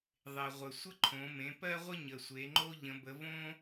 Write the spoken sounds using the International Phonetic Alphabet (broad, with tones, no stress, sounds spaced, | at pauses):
ðˤ e˩ ʁʷ ə˩ sʷ ə˦ ǃʰ õ˩˧ m ẽ˩˧ p ɜ˦ ʁʷ ə˦ ɲ ə˩ sʷ e˩˧ ŋ͡ǃ o˦ ʎ ə̃˩˧ b ə˩˧ v õ˦